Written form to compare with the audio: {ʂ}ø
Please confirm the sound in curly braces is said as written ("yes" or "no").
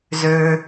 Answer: no